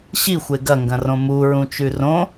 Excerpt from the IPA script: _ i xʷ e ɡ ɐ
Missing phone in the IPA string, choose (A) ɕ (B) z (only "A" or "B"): A